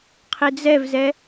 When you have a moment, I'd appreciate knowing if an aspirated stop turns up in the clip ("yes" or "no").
yes